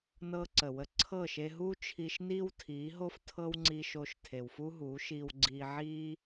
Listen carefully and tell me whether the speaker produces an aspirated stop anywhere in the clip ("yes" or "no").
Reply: yes